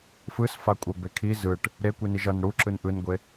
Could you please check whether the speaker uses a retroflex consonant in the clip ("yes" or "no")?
yes